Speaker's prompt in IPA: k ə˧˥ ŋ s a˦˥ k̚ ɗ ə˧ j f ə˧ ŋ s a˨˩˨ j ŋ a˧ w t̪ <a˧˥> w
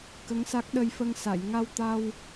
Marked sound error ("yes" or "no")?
yes